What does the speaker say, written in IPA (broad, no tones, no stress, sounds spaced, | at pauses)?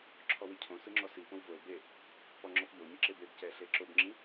ǁʰ ɔ w i cʰ õ s ɯ ŋ͡ǁ ɔ s i p õ w v o e̯ b e | p ɔ ŋ͡ǁ ɔ p ʎ o ɲ ɯ ǁ e b e b c ɛ ɬ e ǁ o b ŋ͡ǁ ĩ